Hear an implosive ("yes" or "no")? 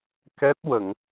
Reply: no